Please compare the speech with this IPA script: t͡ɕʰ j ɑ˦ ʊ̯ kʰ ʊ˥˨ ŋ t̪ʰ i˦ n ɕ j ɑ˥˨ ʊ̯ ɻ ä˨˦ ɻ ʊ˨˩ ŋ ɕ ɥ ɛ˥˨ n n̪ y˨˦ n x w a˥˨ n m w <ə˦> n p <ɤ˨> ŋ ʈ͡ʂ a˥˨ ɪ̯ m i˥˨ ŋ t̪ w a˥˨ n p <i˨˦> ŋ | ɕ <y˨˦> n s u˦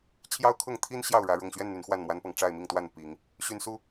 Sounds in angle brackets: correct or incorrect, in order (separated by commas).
incorrect, correct, correct, incorrect